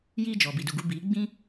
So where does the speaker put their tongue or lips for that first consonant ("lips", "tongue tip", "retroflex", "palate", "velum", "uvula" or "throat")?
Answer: palate